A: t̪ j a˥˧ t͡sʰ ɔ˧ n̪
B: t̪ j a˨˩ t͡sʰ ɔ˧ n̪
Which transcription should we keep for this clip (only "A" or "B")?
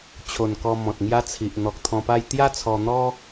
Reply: A